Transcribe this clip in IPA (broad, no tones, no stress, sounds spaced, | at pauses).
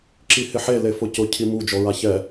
ǁ i h ɪ ħ e l e f ʊ c ʊ cʰ i m u d͡ʒ ɔ ɹ a ç ɛ